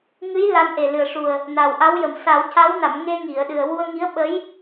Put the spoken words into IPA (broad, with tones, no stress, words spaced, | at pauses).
ŋɨ˧˥j la˧˥nʔe˨˩lɨ˨˩ə̯ʂu˨˩ə̯ | na˨˩wʔa˧˥wjə˨˩m sa˨˩˦wca˧˥wna˨˩˨m ŋe˧ŋi˨˩˨ə̯ɗɨ˨˩ə̯ wu˧ə̯ ŋi˧˥ə̯ɓə˧˥j